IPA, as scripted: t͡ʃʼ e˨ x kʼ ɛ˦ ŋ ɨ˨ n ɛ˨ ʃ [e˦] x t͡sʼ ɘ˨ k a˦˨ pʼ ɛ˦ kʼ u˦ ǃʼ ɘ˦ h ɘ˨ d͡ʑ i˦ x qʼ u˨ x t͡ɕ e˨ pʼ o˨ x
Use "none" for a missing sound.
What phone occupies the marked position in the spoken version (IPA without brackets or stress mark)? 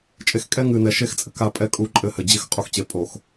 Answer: e˦